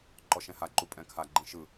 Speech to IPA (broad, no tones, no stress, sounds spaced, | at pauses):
ǃ ɔ ʃ ɛ̃ h a ǃ u pʼ ɛ̃ kʰ a ɡ͡ǃ ĩ ʃ ɯ